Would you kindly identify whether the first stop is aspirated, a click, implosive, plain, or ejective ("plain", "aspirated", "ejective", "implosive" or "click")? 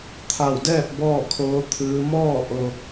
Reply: aspirated